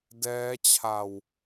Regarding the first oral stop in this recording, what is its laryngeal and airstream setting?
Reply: plain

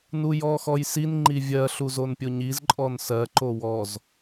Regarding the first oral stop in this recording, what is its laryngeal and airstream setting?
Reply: click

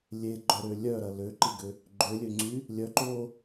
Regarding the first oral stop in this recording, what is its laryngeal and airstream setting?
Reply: click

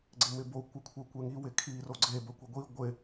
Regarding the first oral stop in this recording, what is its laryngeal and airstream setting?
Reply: click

